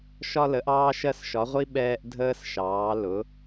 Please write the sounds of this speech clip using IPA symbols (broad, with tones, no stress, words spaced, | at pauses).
ʃɒ˧lə˩˧ʔɑː˧ʃɜ˧s ʃɒ˩˧ʁʷi˧ ɓɛː˧ʔdʱəː˧s ʃɑː˩˧lʊ˩˧